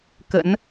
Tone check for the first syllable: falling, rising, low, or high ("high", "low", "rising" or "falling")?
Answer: rising